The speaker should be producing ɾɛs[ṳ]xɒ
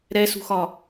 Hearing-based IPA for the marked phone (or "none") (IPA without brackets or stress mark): ṳ